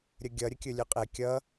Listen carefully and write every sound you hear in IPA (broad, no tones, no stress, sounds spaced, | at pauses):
ɾʲ ə ɡʲ ʌ ɾʲ ə kʲ ɵ lʲ ɵ qʼ ɛ kʲ ʌ